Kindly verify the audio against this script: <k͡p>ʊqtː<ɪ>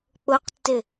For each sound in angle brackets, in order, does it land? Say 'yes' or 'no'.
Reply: yes, yes

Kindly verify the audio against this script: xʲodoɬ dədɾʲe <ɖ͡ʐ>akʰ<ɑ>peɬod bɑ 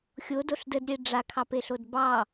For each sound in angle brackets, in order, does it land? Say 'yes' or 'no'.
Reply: yes, yes

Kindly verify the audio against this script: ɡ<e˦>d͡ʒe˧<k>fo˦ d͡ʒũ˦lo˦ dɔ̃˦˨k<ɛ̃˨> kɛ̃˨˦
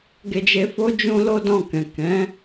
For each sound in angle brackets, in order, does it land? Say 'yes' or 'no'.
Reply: no, no, yes

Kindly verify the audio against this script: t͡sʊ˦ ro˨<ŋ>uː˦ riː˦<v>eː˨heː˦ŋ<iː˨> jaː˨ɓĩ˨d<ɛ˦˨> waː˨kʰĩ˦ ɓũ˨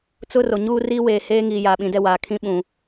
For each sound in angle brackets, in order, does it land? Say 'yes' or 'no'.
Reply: no, no, yes, yes

